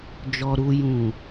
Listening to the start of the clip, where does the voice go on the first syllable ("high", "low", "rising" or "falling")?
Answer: low